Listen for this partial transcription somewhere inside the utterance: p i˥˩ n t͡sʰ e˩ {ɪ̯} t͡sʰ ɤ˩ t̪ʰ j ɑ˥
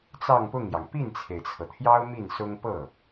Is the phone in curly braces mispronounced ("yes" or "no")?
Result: no